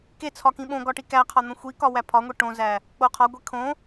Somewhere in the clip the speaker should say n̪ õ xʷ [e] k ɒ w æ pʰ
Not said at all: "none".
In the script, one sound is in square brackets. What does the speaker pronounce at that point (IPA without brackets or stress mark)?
i